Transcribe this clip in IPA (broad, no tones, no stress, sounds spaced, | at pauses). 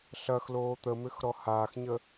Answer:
ɬ ɐ x l oː t̪ ə m ʏ x ɾ ɔ h aː x ɲ ə